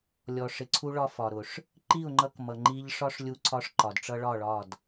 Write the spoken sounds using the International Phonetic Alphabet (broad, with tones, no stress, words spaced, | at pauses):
lʲɔ˨ʂɪ˨ǀʰu˧ɭɒ˧ fɒ˨ɾʊ˨ʂ | ǃi˦˨ʊ̯ŋ͡ǃʌ˧kmʌ˨ ŋ͡ǃi˧ʎʂɒ˦ʂ lʲu˦ǀʰɒ˦ʂ ǃɒ˨dʈ͡ʂʌ˦ɭɒ˦˨ɭɒ˦˨d